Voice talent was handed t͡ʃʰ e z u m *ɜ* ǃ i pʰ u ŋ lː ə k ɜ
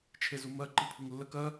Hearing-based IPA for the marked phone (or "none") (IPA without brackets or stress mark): ɜ